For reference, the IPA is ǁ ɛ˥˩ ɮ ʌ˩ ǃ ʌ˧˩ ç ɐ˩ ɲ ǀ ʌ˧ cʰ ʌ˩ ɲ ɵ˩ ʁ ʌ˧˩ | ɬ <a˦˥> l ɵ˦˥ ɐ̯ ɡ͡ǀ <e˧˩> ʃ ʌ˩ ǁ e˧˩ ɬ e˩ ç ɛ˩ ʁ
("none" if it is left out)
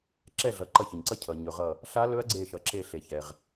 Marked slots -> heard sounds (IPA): a˦˥, e˧˩

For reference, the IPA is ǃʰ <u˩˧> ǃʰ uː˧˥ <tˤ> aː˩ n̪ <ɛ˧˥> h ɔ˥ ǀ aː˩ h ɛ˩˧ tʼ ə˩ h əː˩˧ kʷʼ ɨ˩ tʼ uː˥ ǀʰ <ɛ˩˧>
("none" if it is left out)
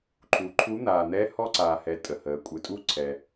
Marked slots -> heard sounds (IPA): u˩˧, n̪, ɛ˧˥, ɛ˩

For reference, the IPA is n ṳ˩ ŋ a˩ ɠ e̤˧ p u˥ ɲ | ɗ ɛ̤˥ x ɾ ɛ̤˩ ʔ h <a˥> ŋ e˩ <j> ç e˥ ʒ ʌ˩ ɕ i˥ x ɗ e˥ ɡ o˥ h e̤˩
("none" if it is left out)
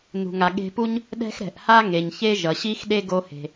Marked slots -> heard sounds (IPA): a˥, ɲ

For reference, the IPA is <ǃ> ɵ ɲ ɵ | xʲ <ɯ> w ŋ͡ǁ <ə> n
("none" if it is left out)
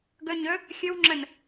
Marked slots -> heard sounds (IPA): ɡ, ɯ, ə

